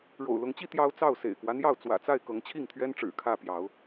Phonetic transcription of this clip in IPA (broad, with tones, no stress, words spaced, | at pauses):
ɻo̰˨˩ʊ̯lʊ˨˦ŋt͡ɕi˦ t̪jɑ˦ʊ̯ t͡sɑ˥˨ʊ̯ sḛ˨˩ɪ̯kwä˦n̪jɑ˥˨ʊ̯ t͡swä̰˨˩t͡sa˥˨ɪ̯ kɤ˨˦ŋt͡ɕʰi˥˨ŋt̪ʰɥɛ˦n ʈ͡ʂɻ̩˨˩kʰä˥˨pjɑ˨˦ʊ̯